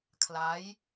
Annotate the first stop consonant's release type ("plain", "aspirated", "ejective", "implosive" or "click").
aspirated